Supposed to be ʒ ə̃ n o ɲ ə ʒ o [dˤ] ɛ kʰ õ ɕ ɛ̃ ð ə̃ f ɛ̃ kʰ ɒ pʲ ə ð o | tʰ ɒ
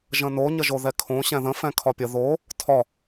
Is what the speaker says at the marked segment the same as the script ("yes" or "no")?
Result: no